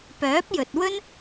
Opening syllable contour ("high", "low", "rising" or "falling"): rising